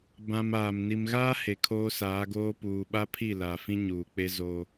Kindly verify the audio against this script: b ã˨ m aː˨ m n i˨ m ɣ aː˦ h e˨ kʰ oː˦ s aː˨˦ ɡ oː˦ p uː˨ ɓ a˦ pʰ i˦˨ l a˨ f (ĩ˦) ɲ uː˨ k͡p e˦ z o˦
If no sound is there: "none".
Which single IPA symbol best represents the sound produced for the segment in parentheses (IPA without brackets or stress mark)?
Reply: ĩ˦